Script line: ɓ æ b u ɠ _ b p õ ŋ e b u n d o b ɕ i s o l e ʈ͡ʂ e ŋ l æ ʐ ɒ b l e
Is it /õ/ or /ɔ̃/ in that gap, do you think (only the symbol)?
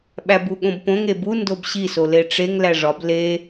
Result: õ